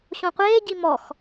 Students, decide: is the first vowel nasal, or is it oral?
nasal